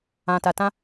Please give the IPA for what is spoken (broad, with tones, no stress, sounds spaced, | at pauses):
ã˨ t a˨ t ã˧